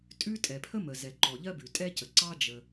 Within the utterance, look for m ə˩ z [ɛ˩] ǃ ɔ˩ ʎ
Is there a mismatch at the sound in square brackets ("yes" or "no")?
no